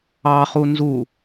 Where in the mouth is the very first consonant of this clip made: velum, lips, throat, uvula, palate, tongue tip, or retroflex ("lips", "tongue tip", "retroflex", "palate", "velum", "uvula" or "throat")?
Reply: uvula